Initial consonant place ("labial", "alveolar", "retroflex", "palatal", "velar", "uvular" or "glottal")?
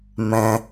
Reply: labial